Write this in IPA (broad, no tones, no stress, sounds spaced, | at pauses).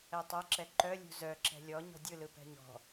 ɛ tˤ œ ǁ ɛ ǃ œ lʲ ṳ z œ ǁ ɛ̤ lʲ ɔ ɲ ɔ̤ dʲ ɯ l ɯ p ɛ̤ ɲ ɔ̤